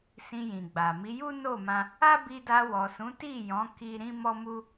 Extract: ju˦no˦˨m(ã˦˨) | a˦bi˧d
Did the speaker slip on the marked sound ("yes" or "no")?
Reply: yes